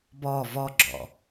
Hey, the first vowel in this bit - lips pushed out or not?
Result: yes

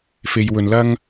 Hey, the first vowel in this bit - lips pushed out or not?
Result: no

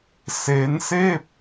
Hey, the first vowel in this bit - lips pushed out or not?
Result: no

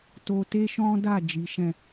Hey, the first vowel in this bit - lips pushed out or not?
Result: yes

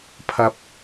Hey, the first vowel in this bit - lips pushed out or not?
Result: no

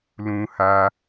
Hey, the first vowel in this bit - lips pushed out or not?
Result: yes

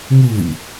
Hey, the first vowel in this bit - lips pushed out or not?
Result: yes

